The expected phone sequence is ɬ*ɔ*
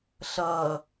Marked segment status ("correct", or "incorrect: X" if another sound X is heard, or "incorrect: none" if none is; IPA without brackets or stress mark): incorrect: ʌ